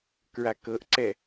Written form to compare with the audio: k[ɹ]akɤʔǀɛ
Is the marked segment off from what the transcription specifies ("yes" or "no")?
no